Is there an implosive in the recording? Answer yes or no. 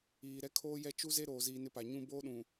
yes